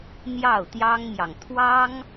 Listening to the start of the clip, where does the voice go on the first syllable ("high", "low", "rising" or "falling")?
falling